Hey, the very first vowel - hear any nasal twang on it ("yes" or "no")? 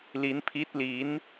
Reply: no